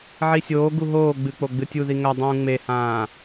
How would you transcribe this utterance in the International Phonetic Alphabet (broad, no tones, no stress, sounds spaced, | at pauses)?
ʕ i sʲ oː ɡ u ɦ oː ɡ͡b ɨ k͡p o ɡ͡b ɨ tʲ u ð i ŋ ɐ dˤ ũː ŋ͡m e h ãː